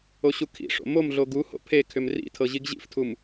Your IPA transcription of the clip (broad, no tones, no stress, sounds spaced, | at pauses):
o ɕ u kʰ ḭ ʂ o̰ m o m ɮ o ɡ u h o̰ pʰ e kʰ ʏ m r ḭ tʰ ɤ ʑ i ɡ ʑ ḭ f tʰ u m